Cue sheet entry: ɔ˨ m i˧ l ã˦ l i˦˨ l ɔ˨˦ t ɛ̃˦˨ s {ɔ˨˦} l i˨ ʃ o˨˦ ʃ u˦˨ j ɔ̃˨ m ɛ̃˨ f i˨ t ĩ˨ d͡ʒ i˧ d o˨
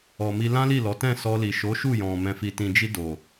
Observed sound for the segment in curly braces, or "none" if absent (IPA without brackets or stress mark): ɔ˧